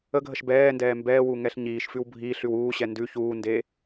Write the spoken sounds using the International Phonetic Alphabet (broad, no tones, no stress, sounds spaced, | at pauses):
ə ɡʱ ə ʃ b ɛː n d ɛː m b ɛː w u ŋ ɛ ɬ ɲ iː ʃ f ʉ w bʱ iː ɬ ʉ w uː ɕ ɛ n d ʉ ç uː n d eː